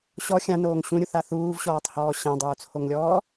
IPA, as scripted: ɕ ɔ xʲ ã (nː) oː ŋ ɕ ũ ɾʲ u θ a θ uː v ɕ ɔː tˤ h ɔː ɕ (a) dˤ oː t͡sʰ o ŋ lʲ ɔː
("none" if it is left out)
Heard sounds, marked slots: n, ã

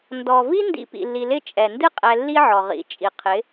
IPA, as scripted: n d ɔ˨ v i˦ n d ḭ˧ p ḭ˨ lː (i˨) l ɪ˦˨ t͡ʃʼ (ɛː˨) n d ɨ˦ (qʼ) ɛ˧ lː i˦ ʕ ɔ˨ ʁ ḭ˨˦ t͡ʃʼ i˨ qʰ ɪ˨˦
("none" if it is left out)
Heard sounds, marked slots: i˨, ɛ˨, qʼ

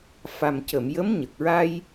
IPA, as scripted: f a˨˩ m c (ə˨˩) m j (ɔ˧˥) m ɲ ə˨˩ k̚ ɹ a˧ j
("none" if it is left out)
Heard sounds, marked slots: ə˨˩˨, ə˧˥

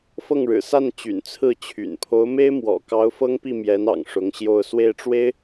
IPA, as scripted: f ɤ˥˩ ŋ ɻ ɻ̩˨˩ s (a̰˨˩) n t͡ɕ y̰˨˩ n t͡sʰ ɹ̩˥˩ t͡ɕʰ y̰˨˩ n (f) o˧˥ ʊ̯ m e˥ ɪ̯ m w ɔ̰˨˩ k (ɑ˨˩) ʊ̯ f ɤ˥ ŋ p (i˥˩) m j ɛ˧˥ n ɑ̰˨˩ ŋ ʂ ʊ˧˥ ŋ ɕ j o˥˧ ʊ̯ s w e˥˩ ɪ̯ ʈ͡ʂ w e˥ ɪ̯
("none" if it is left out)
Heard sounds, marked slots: a˥˩, pʰ, ɑ˧˥, i˥˩

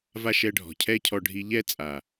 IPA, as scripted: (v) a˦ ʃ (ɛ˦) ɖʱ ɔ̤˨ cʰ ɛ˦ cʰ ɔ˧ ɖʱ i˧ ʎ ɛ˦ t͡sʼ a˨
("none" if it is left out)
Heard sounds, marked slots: v, ɛ˧

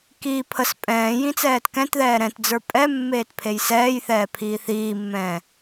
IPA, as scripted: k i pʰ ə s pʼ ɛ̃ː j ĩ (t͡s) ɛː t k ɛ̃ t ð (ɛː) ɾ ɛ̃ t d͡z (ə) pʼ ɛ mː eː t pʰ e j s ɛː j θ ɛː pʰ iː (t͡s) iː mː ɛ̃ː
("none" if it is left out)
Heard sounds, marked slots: t͡s, ɛː, ə˞, θ

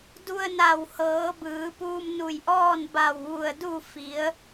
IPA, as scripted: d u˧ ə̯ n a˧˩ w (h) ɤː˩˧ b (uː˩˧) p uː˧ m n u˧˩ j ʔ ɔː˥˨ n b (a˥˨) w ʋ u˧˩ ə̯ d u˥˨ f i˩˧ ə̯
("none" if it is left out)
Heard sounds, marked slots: h, ɯː˩˧, a˧˩

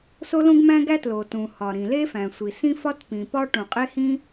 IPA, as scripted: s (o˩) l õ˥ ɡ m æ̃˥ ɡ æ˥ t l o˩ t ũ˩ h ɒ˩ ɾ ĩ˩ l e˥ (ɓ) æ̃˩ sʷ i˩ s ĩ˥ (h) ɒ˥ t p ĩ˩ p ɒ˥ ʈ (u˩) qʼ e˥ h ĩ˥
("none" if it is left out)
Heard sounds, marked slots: o˥, f, f, ũ˩

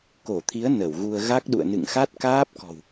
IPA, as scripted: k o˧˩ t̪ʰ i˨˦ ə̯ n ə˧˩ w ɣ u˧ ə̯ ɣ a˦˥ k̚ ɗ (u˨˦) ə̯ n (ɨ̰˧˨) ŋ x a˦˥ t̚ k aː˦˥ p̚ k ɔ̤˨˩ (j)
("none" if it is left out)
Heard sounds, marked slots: ṵ˧˨, ɨ̰˧˨, w

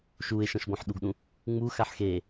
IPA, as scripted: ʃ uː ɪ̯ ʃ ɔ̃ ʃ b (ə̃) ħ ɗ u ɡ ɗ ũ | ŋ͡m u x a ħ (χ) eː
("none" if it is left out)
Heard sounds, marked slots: ɔ̃, x

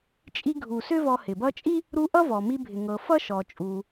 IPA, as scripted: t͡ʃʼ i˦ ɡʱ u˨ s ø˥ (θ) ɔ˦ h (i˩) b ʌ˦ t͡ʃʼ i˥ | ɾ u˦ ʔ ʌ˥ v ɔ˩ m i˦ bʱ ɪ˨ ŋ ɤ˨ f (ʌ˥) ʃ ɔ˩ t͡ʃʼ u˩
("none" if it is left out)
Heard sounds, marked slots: v, ɪ˩, ʌ˥

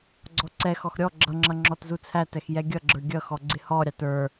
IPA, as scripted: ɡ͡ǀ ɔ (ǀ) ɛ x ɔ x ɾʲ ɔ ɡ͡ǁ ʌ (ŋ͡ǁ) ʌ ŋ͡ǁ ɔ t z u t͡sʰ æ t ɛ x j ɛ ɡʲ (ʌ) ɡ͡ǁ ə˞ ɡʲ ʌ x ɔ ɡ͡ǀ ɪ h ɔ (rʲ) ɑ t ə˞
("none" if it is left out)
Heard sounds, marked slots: ǀ, ŋ͡ǁ, ʌ, ɾʲ

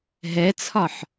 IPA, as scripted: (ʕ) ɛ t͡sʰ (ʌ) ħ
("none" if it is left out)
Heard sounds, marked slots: ɦ, ɒ

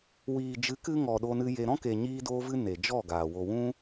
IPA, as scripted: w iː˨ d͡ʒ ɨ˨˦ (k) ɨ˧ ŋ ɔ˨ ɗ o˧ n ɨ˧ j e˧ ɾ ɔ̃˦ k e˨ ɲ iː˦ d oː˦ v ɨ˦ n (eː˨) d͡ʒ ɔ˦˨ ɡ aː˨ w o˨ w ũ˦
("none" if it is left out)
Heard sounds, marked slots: k, e˨

